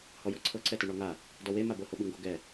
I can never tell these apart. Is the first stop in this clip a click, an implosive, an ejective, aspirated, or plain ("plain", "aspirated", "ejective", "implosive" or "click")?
click